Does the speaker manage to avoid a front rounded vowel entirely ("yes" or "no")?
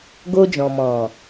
yes